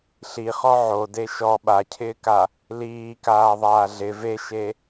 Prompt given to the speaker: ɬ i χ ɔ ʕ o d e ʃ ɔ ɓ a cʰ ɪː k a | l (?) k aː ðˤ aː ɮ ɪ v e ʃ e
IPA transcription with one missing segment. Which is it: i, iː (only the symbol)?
iː